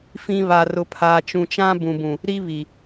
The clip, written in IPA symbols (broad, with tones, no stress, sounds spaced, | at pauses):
f ĩ˦ β a˦ r ʊ˦ pʰ aː˦ t͡ʃ ũ˦ t͡ʃ ã˦ b ũ˨ b ũ˨ | ɾ i˦ β i˨